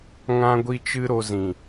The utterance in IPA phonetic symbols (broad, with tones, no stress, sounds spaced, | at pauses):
ŋ ã˦ ɡʷ i˦ t͡ʃ ɨ˦ ɾ o˧ z ĩ˨